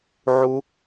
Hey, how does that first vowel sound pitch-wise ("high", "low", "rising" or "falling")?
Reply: high